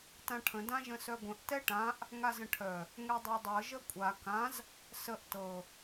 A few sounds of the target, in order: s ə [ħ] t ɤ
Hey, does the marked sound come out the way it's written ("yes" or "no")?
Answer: no